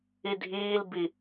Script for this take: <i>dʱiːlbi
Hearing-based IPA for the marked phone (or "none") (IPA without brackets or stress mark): i